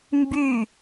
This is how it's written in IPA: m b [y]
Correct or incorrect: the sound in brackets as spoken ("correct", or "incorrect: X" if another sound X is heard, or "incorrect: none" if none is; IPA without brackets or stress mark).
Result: correct